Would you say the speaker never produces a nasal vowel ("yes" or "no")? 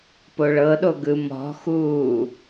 yes